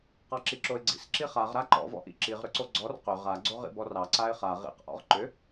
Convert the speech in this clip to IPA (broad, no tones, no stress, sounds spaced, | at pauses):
q ɑ ǁ i ǁ o ɪ̯ ɡ͡ǀ ḭ s ǁ i χ a ʁ ɾ a ǃ ɔ̰ v ɔ̰ ʔ ḭ ǁ i ʁ ɾ ʏ ǀ o ɡ͡ǀ ɔ r q ʏ ʁ a ɡ͡ǀ o ʁ ḭ b ɔ r ɑ ǀ a ɪ̯ χ a ʁ ḭ q ʔ ɔ̰ ʁ ǃ ʏ